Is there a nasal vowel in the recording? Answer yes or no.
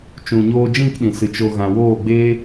yes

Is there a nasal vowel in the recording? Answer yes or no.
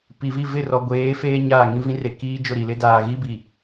yes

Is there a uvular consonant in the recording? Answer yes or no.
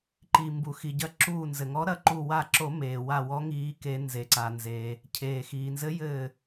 no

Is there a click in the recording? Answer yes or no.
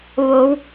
no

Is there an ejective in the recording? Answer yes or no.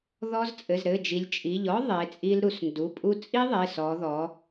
yes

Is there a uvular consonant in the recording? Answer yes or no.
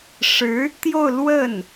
no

